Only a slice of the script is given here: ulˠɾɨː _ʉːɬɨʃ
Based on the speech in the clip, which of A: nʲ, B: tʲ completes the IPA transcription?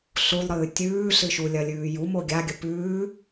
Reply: B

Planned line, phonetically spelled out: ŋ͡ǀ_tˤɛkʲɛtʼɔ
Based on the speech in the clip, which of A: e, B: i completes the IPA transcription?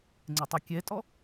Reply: A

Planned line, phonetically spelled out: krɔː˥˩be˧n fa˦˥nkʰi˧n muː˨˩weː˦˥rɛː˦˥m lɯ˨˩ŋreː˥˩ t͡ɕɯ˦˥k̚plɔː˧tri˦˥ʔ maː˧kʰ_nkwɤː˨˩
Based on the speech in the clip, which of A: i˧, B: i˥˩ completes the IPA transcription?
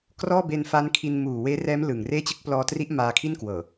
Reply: B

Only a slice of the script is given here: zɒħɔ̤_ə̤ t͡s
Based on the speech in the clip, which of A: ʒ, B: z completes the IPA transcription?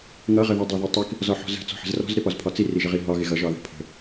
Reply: B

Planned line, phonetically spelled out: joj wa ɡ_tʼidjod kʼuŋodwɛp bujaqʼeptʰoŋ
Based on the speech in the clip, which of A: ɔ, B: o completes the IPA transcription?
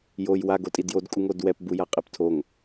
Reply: B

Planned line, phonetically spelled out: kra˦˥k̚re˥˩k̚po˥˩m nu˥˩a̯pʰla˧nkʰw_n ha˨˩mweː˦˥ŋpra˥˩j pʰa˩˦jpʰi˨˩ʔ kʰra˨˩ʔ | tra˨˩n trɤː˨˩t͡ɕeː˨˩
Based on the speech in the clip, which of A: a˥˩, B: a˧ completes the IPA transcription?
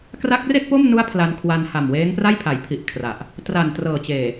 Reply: B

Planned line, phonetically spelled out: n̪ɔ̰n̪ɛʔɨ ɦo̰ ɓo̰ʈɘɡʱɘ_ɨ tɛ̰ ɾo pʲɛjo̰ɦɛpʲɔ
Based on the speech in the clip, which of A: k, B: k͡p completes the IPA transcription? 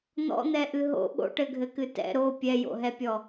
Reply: A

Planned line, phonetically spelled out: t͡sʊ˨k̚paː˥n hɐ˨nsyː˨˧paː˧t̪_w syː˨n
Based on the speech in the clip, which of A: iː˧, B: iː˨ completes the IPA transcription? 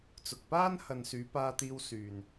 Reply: A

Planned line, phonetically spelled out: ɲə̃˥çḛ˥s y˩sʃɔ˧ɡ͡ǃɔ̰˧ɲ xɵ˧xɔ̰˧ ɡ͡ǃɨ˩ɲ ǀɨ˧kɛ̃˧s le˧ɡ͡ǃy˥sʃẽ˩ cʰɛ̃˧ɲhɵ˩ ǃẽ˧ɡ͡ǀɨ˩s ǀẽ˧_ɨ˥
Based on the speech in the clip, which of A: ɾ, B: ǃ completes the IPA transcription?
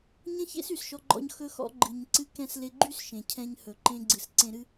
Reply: A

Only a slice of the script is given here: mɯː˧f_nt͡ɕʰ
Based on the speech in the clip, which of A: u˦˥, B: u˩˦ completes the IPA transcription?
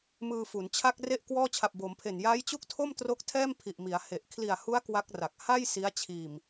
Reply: B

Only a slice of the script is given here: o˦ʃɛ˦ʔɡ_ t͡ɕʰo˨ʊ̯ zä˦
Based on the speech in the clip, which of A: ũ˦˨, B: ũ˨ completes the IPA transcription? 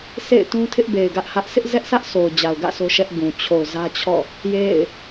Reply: B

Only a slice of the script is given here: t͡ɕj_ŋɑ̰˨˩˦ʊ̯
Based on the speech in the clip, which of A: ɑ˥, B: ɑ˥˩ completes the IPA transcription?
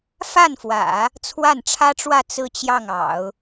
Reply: B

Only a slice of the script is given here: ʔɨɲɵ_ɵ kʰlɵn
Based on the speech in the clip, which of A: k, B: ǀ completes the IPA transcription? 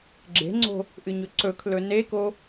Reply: B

